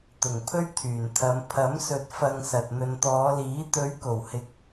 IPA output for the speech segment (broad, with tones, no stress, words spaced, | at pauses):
t̪ʊ˨˩ŋ pʰɵ˥ɥt̪ʰyː˨˩nt̪ʰɐ˨˧m pʰɐ˨˥msɵ˨˥t̚ fɐ˧ŋsɐ˨t̚ n̪ɵ˨nt̪ɔː˨˧liː˨˥ t̪ɵ˨˧ɥko˨˩whɪ˨k̚